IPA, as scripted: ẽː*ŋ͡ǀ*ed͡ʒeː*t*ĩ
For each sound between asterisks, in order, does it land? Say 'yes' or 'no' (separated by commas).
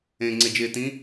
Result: yes, yes